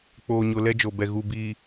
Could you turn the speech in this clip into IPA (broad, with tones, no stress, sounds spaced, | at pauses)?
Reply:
k͡p oː˨ ɲ ʊ˨ l ɛ˦ d͡ʒ o˨ b ɛ˨ ɣ u˨ b iː˨